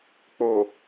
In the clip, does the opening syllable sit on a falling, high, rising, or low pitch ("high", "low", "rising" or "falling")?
low